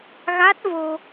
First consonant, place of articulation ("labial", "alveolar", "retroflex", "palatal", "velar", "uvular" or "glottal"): velar